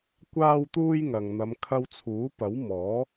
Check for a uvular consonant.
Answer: absent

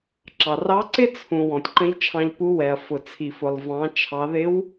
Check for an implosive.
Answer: absent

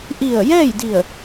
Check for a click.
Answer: absent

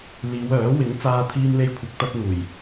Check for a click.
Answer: absent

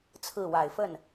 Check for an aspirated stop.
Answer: present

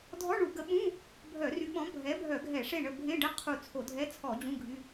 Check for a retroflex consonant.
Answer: present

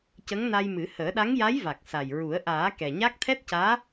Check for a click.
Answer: absent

